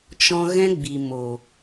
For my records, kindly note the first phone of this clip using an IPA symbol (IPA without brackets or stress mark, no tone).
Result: t͡ʃ